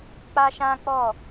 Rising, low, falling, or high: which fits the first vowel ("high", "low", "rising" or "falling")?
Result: high